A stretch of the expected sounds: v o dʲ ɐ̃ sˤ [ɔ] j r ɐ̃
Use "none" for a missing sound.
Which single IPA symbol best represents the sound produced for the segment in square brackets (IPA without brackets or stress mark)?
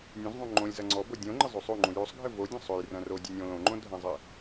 ɵ